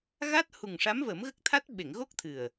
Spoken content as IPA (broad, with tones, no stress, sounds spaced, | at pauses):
ɣ a˦˥ t̚ h u˨˩ ŋ ʂ a˧˥ m v ə˨˩˦ m ɣ ə˦˥ k̚ t̪ʰ a˦˥ t̚ ɓ e˨˩˨ ŋ ɣ o˦˥ k̚ t̪ʰ ɨ˨˩ ə̯